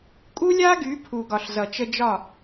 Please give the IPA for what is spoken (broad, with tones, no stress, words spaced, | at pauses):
kʼu˦lʲa˦ɡy˨˦ pʰu˨ɡɒ˨ɬzʌ˨ t͡ʃə˧d͡ʒɒ˦˨